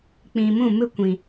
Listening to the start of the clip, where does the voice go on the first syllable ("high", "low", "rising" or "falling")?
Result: low